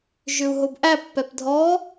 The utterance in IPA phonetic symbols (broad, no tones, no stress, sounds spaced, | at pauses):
ʒ ʏ u̯ ɦ o b ʔ æ pː ɛ p dʱ ɔ